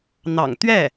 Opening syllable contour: low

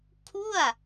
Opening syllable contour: falling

